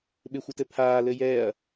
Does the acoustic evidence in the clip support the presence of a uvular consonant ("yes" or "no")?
no